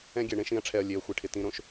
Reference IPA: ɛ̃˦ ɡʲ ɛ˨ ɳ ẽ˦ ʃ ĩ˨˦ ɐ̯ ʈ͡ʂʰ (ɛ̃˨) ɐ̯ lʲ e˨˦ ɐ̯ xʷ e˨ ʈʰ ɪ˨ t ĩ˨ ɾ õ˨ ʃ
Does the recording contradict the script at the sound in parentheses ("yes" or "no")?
yes